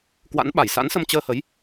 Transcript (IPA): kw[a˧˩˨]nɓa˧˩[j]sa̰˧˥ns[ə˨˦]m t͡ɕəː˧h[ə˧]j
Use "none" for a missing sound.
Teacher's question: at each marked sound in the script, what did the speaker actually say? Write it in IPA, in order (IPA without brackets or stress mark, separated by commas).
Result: a̰˧˥, j, ə˧, ə˨˦